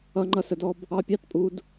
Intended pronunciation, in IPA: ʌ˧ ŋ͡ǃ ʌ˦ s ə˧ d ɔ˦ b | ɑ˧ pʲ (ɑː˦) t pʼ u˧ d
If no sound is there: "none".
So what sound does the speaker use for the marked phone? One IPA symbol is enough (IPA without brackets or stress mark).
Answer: ɑ˦